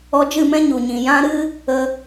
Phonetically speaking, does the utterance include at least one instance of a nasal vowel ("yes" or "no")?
yes